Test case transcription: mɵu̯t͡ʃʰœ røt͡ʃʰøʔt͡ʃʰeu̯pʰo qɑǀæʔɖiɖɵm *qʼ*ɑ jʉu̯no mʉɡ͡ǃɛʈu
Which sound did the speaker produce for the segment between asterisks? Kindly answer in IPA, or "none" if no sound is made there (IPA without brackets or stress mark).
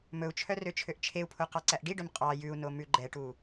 qʼ